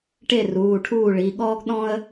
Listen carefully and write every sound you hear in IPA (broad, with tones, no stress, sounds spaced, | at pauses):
ʈ e˥˩ r uː˩˧˩ ʈʰ uː˥˩ ɭ i˩˧˩ ɠ ɔː˥ ɡ ɗ ɔ̃˥ ə̯